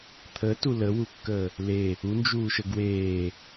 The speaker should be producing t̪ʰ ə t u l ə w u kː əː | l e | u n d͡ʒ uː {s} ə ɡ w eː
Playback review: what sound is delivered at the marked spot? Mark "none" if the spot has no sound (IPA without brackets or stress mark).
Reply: ʃ